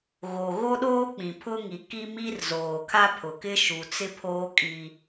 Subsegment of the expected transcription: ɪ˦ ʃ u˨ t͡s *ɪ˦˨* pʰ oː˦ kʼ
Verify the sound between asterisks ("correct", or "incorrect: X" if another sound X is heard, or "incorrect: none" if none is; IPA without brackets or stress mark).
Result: incorrect: ɪ˦